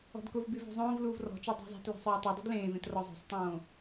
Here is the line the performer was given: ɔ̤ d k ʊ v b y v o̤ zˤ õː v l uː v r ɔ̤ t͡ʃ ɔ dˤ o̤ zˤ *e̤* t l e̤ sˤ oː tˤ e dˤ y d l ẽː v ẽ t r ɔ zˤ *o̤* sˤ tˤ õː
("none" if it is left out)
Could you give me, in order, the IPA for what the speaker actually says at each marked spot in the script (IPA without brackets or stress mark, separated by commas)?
e̤, o̤